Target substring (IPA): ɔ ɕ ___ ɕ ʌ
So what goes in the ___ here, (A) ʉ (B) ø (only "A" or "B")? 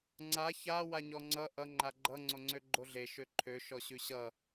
A